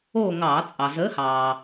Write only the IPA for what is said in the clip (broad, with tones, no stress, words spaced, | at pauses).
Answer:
oː˦˨ ŋɑː˧˩˧ t͡sʼɑ˩zəː˨˥hɑː˩